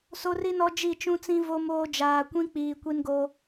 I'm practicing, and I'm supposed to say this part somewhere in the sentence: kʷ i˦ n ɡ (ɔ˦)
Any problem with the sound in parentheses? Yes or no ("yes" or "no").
yes